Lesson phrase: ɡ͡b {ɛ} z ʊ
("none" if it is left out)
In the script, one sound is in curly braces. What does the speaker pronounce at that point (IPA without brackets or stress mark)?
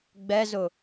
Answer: ɛ